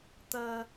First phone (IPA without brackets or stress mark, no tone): t̪